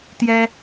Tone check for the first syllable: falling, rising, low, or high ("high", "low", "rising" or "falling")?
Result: high